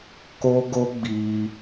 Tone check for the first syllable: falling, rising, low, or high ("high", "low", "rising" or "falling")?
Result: high